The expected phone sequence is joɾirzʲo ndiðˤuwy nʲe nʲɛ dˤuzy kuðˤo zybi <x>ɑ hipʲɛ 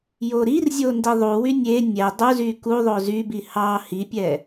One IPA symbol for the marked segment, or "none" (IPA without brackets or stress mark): h